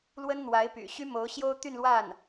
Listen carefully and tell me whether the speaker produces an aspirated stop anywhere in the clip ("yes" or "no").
no